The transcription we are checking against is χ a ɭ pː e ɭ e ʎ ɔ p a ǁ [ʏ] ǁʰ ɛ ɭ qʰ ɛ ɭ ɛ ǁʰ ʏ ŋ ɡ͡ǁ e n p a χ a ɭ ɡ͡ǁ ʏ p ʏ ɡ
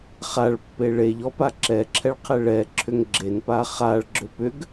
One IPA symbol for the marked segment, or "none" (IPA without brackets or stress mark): ɛ